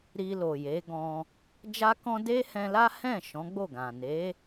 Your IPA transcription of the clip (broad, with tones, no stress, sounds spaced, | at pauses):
ɾ i˧ l o˨ j e˨˦ ɡ ɔ̃˧ | d͡ʒ a˦ k ɔ̃˦ d e˦ h ɛ̃˧ l a˦ h ɛ̃˦˨ ʃ ɔ̃˨˦ ɡ͡b o˦˨ ɡ ã˨ n e˨˦